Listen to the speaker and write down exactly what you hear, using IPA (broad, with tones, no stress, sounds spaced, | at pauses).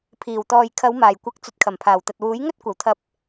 pʰ iː˨˩ w t̪ ɔː˨ j kʰ ɐ˨˧ w m aː˨˩ j kʷ ɐ˨˥ k̚ t͡s ɵ˨˥ t̚ kʰ ɐ˨˩ m pʰ aː˨˩ w t̪ ɐ˨ t̚ w uː˨˥ j ŋ ɵ˥ t̚ kʷ ɐ˨˩ w t̪ʰ ɐ˧ p̚